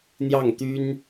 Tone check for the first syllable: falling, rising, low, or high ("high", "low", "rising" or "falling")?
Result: falling